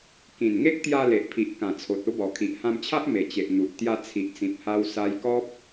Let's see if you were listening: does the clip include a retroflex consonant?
no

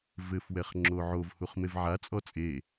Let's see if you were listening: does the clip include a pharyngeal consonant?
yes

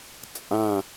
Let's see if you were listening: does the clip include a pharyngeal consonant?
no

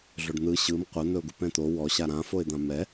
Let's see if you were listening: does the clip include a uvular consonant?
yes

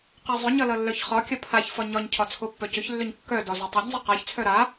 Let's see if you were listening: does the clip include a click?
no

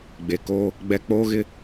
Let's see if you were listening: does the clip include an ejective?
no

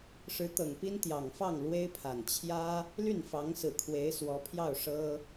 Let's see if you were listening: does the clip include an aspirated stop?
yes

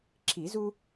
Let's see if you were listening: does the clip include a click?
yes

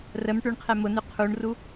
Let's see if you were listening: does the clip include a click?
no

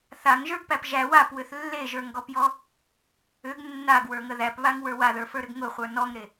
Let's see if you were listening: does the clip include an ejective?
no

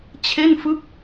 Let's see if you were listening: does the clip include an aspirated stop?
yes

